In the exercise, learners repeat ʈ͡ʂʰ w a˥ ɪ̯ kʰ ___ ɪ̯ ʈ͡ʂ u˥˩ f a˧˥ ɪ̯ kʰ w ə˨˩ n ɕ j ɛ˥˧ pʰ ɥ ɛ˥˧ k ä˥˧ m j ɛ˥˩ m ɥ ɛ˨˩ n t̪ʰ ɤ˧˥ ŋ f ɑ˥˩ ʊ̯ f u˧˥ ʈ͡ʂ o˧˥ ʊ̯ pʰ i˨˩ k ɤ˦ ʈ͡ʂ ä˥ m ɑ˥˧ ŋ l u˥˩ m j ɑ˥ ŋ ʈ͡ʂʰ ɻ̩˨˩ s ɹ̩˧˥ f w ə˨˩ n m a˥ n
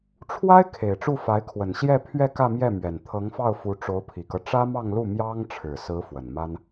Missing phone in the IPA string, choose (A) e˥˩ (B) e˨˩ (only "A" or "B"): B